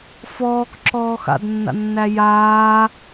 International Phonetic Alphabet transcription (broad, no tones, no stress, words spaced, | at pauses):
fɔːkǁɔː xa̰dnːa̰nːæ jaː